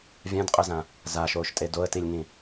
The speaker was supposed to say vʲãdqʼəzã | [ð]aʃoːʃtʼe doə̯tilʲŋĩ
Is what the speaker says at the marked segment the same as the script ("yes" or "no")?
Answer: no